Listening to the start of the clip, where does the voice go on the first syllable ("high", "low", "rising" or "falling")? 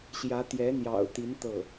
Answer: rising